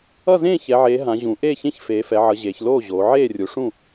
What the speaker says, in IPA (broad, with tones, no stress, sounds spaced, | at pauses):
ʌ˥˩ z ẽː˥˩ ç ɛ˩˧ ʕ eː˩˧ ɦ ã˩˧ ʑ ũ˩˧ ʔ eː˥˩ ç ẽ˥˩ ç f eː˩˧ f ɛ˩˧ ʕ ʌ˩˧ ʑ eː˩˧ ç l oː˥˩ ʑ oː˩˧ ʕ eː˥˩ rʲ u˩˧ ʂ ũ˥˩